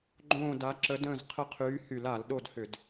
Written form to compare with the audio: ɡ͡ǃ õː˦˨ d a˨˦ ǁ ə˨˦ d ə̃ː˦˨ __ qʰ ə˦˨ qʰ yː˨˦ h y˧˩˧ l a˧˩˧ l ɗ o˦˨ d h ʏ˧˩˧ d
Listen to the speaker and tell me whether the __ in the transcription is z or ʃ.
z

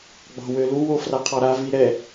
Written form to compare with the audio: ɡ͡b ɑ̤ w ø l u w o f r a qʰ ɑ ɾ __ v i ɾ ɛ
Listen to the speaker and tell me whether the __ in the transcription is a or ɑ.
a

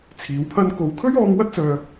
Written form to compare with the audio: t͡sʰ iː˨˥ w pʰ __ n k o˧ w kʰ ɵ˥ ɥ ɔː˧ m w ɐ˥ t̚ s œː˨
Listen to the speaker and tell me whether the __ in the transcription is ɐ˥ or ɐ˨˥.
ɐ˥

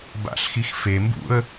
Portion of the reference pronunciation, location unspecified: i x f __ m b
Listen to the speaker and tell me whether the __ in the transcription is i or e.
e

